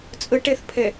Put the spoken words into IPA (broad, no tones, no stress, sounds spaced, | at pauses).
t͡sʼ ə ʈ ɛ θ pʰ ɛ